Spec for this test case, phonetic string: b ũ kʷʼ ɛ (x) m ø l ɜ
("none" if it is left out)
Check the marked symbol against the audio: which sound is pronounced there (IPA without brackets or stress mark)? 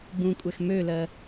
x